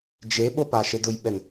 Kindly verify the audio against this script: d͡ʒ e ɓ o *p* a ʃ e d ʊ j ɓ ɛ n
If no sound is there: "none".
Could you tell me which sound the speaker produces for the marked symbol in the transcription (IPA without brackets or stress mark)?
p